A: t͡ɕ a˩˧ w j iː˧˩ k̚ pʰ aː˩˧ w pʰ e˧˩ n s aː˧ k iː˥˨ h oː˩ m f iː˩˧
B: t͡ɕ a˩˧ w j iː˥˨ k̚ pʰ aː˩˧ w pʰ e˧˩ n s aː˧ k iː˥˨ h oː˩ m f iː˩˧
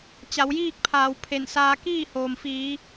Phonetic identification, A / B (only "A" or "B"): B